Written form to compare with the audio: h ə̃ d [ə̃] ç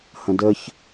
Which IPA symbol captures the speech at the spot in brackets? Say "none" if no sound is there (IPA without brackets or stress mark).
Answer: ə